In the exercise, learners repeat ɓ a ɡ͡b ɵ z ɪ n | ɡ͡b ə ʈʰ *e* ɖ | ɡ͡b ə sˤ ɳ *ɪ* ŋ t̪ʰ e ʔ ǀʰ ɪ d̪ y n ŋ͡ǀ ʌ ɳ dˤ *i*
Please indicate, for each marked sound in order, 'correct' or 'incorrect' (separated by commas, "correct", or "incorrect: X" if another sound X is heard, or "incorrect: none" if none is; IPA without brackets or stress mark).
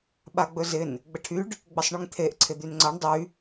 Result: incorrect: y, incorrect: y, incorrect: y